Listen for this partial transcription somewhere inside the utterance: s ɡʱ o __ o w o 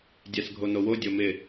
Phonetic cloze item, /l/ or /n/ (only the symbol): n